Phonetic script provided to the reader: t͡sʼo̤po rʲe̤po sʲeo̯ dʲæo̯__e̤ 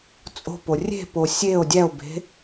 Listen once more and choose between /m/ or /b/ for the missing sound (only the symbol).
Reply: b